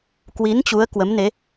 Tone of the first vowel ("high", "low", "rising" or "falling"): rising